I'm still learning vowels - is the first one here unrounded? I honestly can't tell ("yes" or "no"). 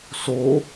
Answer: no